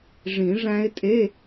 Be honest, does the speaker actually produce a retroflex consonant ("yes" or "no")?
yes